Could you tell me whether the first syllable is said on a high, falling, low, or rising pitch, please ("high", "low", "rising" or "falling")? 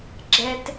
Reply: high